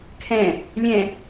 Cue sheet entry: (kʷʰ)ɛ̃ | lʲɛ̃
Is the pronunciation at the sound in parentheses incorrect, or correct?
incorrect